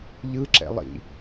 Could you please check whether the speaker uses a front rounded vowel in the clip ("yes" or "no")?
no